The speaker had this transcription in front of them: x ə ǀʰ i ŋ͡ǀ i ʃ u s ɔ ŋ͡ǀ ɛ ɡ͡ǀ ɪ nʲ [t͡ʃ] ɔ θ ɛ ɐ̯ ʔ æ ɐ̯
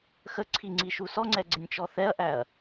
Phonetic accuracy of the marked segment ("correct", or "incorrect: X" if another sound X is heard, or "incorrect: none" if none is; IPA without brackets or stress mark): correct